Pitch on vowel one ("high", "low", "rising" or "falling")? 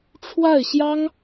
falling